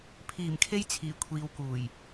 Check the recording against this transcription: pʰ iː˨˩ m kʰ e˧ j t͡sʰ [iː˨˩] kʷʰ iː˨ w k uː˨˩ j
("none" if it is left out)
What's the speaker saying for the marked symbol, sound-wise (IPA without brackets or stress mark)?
iː˨˩